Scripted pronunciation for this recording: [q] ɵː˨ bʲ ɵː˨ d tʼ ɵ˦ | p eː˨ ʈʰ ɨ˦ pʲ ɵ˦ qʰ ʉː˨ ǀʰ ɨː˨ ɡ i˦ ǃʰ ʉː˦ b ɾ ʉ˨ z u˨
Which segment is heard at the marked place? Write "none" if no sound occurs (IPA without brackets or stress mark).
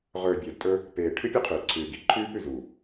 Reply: ʁ